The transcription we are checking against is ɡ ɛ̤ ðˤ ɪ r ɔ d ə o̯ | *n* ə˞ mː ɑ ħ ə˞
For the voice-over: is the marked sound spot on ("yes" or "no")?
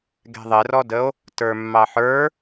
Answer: no